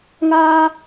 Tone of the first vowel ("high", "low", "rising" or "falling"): high